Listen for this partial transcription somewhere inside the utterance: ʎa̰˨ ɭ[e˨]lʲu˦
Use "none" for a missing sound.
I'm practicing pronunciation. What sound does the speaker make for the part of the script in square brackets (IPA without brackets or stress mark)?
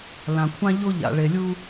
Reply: e˨